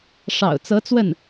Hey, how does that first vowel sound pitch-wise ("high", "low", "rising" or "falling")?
low